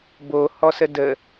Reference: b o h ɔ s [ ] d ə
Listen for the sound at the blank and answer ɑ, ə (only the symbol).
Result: ə